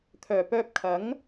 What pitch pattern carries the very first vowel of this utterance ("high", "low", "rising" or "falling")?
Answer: low